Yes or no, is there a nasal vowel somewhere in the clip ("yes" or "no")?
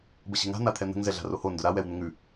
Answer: no